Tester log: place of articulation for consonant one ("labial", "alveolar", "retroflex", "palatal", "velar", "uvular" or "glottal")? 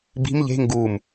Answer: labial